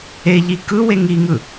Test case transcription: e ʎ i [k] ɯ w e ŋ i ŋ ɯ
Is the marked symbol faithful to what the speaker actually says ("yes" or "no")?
yes